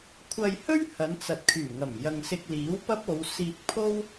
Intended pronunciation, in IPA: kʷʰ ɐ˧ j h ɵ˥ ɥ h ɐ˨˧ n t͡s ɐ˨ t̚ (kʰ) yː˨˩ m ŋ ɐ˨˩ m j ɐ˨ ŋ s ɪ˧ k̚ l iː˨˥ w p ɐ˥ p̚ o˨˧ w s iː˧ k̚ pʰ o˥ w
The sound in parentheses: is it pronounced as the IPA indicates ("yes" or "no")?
yes